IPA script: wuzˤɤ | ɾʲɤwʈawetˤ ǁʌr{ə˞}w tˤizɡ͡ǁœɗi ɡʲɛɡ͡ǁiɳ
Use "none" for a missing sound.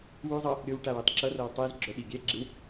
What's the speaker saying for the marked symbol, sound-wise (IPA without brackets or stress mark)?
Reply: ɤ